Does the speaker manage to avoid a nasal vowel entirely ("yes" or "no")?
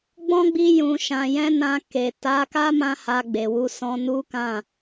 no